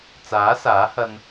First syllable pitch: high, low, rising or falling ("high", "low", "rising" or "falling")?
rising